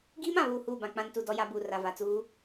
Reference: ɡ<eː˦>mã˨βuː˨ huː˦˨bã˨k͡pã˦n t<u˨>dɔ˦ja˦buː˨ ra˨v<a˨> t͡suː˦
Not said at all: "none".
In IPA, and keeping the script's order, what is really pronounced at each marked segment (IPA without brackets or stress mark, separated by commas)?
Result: iː˦, u˨, a˨